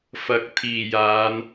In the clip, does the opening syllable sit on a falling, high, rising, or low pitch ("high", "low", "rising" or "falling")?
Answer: rising